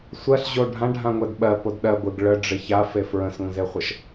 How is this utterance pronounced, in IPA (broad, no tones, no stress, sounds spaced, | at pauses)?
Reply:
sʷ ɜ ɬ ʑ o ɖʱ ã ɖʱ ã ŋʷ ɛ d ɓ ɜ p o d ɗ ɜ ɡʷ ɪ ɡ ɭ ə ɖ͡ʐ ɪ ç a f e f ɹ ə̃ s ŋʷ ə̃ z e χʷ ə ʃ